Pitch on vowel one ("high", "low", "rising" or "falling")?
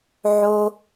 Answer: low